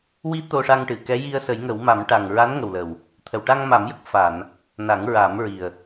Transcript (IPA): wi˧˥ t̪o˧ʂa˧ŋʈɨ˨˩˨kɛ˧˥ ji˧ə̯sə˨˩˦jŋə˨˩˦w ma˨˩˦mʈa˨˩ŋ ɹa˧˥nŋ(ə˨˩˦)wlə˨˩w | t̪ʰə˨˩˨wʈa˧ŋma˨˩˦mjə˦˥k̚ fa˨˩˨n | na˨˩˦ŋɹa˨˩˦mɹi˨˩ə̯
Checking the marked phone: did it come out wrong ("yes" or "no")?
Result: yes